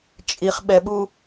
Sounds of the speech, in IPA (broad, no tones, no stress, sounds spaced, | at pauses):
t͡ʃʼ i χ ɓ ɛ ɓ u